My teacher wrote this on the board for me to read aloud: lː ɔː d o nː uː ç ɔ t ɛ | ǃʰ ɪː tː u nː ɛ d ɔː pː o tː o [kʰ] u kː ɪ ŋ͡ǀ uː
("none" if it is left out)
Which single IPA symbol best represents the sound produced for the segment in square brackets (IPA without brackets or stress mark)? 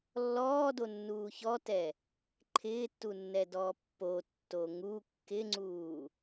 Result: ŋ